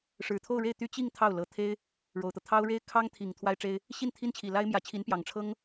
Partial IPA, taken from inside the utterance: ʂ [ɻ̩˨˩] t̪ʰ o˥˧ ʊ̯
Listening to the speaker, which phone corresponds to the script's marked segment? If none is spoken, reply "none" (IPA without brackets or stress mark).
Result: ɻ̩˨˩